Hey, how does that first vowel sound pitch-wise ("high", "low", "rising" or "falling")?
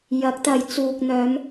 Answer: rising